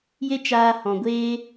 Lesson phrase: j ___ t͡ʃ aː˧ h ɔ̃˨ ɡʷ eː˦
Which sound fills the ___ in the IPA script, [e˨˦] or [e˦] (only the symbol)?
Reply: e˦